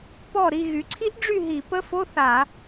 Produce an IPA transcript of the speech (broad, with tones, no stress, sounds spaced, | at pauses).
p ɔ˦˨ ɾ i˦˨ ɣ y˩˧ ǀʰ i˦˥ ʔ ɖ͡ʐ y˦˨ ɦ i˧˩˧ p ə˧˥˧ f o˧˥˧ θ a˧˩˧